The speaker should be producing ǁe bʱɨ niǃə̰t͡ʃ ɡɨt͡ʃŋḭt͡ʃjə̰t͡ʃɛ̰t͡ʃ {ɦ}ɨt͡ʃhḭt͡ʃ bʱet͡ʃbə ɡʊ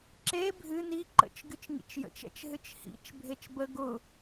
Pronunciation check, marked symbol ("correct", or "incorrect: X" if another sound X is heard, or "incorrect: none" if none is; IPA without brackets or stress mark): correct